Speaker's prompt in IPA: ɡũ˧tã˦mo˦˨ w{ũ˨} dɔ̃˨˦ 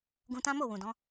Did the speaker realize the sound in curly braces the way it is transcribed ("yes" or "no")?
yes